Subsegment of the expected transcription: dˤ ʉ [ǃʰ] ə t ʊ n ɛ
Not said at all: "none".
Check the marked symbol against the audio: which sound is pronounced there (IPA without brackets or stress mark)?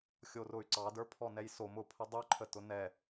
ǃʰ